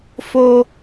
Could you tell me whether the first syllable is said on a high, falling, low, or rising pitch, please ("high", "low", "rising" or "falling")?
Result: high